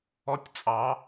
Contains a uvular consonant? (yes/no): no